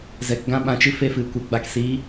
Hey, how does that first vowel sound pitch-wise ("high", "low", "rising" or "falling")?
low